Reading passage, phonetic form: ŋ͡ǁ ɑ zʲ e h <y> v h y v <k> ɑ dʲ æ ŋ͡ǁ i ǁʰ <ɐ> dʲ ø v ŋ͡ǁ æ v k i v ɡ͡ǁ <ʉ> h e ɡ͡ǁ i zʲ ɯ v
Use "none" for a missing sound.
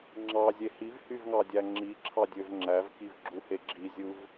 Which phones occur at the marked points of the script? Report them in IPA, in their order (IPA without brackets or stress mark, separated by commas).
i, ŋ, ɑ, u